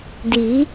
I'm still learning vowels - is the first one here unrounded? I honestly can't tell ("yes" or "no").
yes